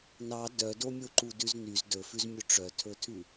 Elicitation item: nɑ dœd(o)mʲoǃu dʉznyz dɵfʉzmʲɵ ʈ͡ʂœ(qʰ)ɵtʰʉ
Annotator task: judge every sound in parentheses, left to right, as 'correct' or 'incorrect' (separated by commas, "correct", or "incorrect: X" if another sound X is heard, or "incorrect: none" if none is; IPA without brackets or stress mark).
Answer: correct, incorrect: tʰ